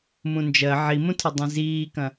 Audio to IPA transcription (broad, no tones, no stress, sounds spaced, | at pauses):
m ũ n d͡ʒ ɜ ʕ i m ũ tʰ ʌ dˤ ĩ z iː k ɐ̃